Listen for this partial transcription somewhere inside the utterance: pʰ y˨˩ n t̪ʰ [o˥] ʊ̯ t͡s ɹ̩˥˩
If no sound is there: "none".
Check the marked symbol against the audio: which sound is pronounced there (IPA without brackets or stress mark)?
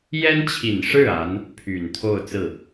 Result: o˥˧